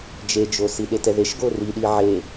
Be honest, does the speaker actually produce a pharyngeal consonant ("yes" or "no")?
yes